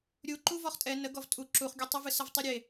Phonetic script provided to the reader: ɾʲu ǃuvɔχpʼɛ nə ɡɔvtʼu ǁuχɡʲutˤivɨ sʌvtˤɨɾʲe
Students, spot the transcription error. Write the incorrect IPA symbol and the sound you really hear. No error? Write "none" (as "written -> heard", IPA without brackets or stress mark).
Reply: pʼ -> tʼ